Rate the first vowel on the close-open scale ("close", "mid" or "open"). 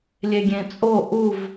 mid